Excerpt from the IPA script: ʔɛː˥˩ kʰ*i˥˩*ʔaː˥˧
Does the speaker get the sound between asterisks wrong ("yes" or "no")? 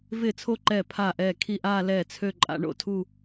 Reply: no